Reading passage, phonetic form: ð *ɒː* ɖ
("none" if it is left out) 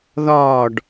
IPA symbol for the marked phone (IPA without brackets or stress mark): ɒː